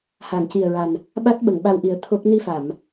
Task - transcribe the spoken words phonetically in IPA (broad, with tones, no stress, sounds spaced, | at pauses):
h a˨˩˨ ŋ c i˨˩ ə̯ ɹ a˨˩ n | ɓ a˦˥ t̚ ɓ ə˨˩˨ ŋ ɓ a˧ w ʔ i˨˩˦ ə̯ t̪ʰ o˦˥ k̚ n i˧ f a˨˩˨ m